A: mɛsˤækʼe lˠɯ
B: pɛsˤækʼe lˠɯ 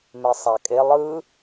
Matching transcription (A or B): A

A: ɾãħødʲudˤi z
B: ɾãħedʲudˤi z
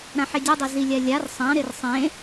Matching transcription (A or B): B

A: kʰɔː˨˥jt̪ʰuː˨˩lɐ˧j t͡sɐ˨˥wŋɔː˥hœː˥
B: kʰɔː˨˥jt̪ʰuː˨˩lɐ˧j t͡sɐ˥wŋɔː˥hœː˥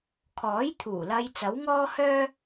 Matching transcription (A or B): A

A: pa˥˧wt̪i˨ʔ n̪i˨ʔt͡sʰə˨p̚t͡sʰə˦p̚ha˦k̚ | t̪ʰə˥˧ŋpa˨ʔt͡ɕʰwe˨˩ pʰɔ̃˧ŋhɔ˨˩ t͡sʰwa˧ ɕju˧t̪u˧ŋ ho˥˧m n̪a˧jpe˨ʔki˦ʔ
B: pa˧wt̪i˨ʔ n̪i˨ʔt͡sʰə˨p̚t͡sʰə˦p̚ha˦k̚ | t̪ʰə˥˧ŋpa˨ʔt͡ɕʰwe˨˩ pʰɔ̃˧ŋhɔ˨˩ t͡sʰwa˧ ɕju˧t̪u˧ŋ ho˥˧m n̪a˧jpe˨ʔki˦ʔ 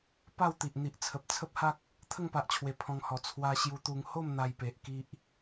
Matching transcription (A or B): A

